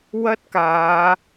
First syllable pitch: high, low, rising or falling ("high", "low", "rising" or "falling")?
high